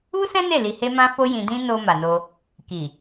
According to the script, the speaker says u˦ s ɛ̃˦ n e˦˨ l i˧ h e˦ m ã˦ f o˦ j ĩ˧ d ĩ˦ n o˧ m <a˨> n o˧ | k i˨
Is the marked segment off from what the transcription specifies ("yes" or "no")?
no